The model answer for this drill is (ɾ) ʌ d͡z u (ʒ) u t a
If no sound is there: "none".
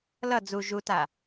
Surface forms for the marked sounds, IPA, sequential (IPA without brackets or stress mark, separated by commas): l, ʒ